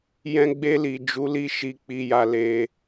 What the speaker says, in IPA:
jɛ̃˧ɡ͡be˧li˨ d͡ʒu˨˦li˧ʃi˨ k͡pi˨ja˨ le˨

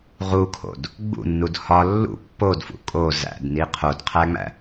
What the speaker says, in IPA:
ʁukʰo̰d | ɡ͡bṵnːud hɒ lːṵ pːodfṵ kʼo zæ̰dni qʰodqʰæŋ͡mæ̰

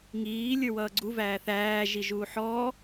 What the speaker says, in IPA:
ŋiː lʲə˞wʌːɡ͡ǀu væːθæː ʒiʒuːħɔː

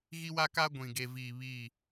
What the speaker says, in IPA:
ɣi˦wa˦ ka˦ɡʷĩ˨ ɡe˨viː˨ βi˦˨

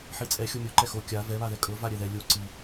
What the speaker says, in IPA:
ħit͡sʼɛ xʲomʲu ǃɛxo kʲa vɛ βaðɛkʼɤ vaɾʲɛðɛ lʲo ǀi

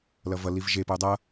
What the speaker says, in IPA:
lʌvʌliv ʒepəu̯ dˤʌ

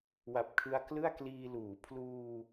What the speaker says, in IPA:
wa˨˩p̚kʰɯ˧a̯klɯ˥˩a̯kliː˧ luː˩˦ pʰluː˧

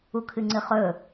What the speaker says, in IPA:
ukʰɨŋ͡ǀɨχɵ

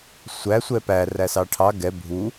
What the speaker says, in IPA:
sʷæ sʷɛpæ ræsɑʈʰɑ ɡɛ bʱu

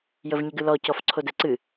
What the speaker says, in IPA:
jəvɲəɡɨlɔ cɔfǀʰodɛǀɨ

